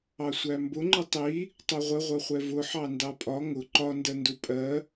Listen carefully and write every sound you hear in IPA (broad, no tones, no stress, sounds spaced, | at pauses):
ɑ sʷ æ m b ʊ ŋ͡ǃ ɪ tˤ i | tˤ u ʁʷ ə ʁʷ ʌ χʷ ɛ v ʊ ħ ɑ n d ɑ pʼ ɒ ŋ ʊ ǃ ɒ n d ɜ n d u pʼ ɜ